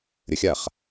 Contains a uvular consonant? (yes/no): yes